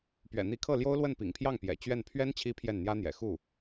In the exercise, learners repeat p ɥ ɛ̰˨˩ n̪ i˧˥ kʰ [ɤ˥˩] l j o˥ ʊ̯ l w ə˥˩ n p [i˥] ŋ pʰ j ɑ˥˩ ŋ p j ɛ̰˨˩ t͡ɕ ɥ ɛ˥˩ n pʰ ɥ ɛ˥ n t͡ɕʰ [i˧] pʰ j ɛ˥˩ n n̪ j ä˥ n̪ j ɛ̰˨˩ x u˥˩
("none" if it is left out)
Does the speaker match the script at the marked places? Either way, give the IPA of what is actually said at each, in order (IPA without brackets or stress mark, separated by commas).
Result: ɤ˥˩, ḭ˨˩, i˥